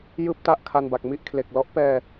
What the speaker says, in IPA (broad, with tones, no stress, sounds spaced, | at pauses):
j ɯː˥˩ p̚ t a˥˩ ʔ kʰ a˧ n b a˨˩ k̚ m i˥˩ ʔ kʰ l e˨˩ k̚ l ɔ˦˥ ʔ p ɛː˧